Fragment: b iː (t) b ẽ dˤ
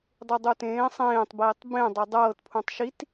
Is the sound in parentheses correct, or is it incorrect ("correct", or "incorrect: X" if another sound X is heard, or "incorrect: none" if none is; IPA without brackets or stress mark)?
incorrect: tˤ